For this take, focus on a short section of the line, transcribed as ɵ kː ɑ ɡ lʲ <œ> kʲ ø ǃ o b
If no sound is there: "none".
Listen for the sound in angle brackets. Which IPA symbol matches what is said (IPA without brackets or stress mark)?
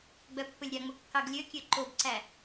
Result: ø